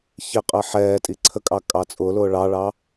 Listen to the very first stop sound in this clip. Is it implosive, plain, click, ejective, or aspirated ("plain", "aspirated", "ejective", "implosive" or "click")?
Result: ejective